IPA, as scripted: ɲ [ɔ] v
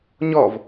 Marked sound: correct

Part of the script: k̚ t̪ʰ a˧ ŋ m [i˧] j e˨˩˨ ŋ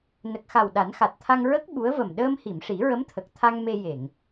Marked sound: incorrect: e˧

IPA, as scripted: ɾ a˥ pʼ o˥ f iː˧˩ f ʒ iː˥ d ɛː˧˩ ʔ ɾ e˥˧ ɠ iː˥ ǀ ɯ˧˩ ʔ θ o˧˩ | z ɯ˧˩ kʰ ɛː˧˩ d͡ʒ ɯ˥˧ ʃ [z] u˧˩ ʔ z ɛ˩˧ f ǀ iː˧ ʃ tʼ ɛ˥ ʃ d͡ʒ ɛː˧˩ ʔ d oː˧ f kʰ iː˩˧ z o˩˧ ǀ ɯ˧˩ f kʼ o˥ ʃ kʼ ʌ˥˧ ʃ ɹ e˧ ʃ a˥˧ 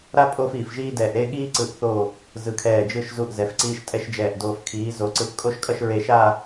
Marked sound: correct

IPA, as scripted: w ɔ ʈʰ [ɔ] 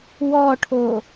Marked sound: incorrect: o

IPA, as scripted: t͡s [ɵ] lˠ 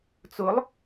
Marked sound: incorrect: ʊ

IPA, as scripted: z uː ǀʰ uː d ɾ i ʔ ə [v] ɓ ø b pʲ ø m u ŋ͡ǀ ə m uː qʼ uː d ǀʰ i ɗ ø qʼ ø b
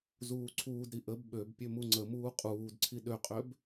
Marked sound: incorrect: b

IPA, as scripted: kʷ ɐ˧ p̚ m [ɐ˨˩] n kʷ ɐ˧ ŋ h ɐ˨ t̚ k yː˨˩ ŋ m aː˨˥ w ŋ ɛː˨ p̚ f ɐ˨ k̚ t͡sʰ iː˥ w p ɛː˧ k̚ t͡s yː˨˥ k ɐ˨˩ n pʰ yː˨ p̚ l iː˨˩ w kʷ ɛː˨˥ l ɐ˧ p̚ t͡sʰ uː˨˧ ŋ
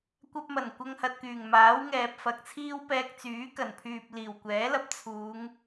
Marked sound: correct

